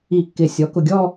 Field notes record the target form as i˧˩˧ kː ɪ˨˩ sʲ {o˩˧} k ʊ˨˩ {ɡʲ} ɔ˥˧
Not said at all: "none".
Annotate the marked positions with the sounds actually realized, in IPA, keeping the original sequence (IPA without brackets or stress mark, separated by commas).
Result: ɔ˩˧, ɡʲ